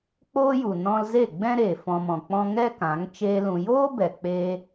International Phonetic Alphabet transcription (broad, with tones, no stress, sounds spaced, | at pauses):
k͡p oː˦ j u˨ n ɔ̃˧ l z e˦˨ ɡ͡b ɛ̃˦ ɾ eː˨ f ɔ̃˧ m ɔ̃˨ k͡p ɔ̃˦ ŋ ɛ˦ k ã˨˦ ŋ t͡ʃ eː˦ l ũ˧ j oː˦ b ɛ˨ k͡p e˧